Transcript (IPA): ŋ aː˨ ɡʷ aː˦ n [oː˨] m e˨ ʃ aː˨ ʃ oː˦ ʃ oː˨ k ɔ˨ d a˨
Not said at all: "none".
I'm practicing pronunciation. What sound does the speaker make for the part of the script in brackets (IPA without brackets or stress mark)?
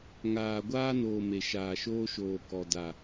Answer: oː˨